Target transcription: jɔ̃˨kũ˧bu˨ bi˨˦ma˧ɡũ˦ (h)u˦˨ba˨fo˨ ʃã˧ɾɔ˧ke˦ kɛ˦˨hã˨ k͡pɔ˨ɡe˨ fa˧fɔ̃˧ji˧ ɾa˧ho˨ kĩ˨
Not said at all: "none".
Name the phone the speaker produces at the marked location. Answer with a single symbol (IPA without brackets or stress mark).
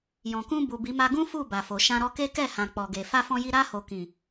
f